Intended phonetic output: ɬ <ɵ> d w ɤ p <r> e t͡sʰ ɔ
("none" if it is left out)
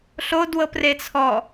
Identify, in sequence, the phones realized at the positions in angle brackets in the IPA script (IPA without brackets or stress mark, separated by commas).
o, r